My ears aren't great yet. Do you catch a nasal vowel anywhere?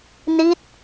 no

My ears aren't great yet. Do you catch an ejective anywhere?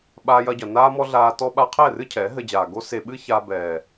no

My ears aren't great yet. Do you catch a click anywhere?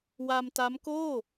no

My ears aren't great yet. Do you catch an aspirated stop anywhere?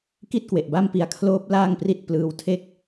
yes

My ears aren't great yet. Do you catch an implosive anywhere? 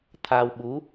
yes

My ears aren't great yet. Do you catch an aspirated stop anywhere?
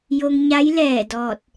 no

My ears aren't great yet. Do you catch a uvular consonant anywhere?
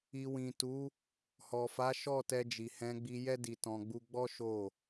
no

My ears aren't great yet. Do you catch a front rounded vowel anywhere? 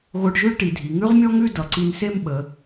no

